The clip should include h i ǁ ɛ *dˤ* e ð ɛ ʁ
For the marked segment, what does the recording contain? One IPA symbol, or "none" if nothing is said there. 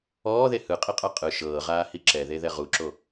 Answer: ð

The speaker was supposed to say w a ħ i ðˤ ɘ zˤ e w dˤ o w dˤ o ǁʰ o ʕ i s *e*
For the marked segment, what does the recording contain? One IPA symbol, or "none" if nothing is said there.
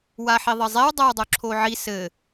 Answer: ɘ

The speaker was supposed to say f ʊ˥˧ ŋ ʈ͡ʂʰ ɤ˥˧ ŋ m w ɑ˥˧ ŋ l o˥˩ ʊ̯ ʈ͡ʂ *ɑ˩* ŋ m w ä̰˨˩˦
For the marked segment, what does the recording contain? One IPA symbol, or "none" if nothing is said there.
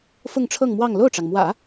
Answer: ɑ˩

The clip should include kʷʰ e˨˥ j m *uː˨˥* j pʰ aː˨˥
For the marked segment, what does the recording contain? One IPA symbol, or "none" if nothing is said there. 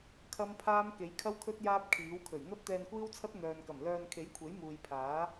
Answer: uː˨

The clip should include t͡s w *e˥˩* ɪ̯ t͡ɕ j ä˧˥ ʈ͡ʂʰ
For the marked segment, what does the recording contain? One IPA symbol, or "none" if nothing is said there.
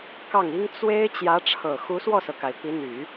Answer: e˥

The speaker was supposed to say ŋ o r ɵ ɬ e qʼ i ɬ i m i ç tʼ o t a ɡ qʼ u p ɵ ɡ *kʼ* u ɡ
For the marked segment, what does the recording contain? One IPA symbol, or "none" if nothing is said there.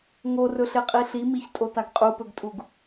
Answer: tʼ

